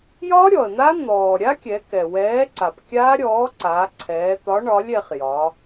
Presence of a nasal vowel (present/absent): absent